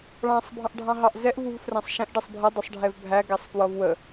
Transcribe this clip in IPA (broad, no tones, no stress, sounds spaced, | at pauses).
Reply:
ɭ ɑ̃ sˤ bʱ ɑ̃ ʔ ɖʱ ɑ̃ ɦ ɑ ʔ z ɛ ʔ v u v f r æ̃ sˤ ʃ ɛ̃ ʔ ɖ ʌ sˤ bʱ ʌ dˤ ɪ sˤ ɖʱ ɛ v bʱ æ ɡ æ sˤ f w ʌ v w ə